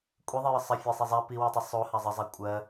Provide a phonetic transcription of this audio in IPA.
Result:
kʷʼ i ðˤ i j ə sˤ ɜ fʲ æ sˤ i zˤ æ p i w y tˤ i sˤ o h a zˤ ə zˤ a kʷʼ ɜ

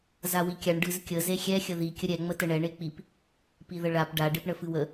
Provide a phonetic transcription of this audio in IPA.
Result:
z a w i kʲ a ɳ ɖ ɨ z kʲ ə z e xʲ ɛ xʲ ə ð i kʲ ə ɾʲ ɛ ŋ͡m ə t ə ɳ ɛ ɳ e k͡p i p | p i ð ə ɭ a p ɖ a ɖ e p ɳ ə f ɨ w ə

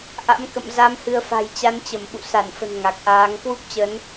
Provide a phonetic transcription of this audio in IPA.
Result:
ʔ a̰˧˥ m k ə̰˧˨ m z a˨˦ m h ɨ˧ ə̯ f a̤˨˩ j t͡ɕ a˨˦ n t͡ɕ ə˧˩ m ɓ ṵ˧˨ s a˧˩ n f ə̤˨˩ n ŋ a˨˩ k̚ ʔ aː˨˦ ŋ k w u˦˥ p̚ t͡ɕ ə˨˦ n

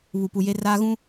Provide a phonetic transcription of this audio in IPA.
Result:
β u˨ p u˨ j e˦ r aː˦ ɣ ũ˦

